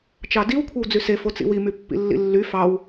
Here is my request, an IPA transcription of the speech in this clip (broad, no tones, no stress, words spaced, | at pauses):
t͡ʃɑdiw kʷʰewd͡zyse fot͡sḭwi mypːḭlːḭlːy fɑw